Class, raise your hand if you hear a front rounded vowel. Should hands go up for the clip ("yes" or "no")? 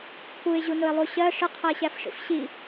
no